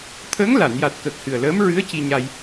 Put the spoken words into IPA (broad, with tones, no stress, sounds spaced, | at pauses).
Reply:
t̪ʰ əː˧˥ ŋ l a˨˩˨ n j a˨˩ t̚ k ə˨˩ k̚ h ɨ˨˩ ə̯ l əː˧˥ m ɹ ɨ˧˥ ə̯ c i˧ ɲ a˧ j